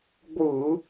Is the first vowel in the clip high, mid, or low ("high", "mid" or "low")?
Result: high